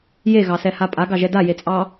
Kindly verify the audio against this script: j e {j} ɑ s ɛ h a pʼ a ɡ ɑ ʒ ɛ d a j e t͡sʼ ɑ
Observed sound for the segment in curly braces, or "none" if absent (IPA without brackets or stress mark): ɣ